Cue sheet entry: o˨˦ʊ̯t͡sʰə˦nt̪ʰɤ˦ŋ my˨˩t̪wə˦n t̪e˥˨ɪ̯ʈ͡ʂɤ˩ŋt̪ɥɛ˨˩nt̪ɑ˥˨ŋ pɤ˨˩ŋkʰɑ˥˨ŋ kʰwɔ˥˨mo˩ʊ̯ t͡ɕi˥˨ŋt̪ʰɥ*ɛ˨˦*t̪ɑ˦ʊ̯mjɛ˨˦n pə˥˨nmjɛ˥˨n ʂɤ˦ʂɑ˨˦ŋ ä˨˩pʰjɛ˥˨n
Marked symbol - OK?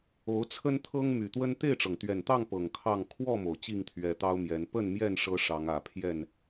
yes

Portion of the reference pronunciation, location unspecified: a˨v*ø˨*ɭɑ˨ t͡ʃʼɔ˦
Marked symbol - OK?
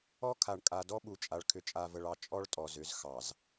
no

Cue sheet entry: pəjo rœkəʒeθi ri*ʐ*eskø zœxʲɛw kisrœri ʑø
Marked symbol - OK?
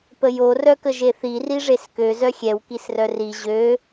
yes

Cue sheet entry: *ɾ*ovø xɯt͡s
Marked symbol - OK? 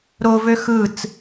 yes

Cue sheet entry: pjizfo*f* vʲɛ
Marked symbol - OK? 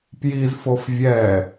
yes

